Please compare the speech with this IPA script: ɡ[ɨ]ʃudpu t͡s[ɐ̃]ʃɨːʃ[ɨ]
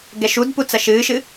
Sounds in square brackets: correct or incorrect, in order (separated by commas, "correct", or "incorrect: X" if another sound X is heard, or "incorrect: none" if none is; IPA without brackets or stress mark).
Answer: incorrect: ɛ, incorrect: ɐ, correct